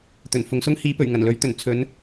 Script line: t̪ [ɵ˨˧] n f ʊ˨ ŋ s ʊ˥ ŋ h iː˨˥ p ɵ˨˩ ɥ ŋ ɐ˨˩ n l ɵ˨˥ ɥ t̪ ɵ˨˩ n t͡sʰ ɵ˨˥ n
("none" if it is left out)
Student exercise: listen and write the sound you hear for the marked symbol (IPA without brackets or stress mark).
ɵ˨˩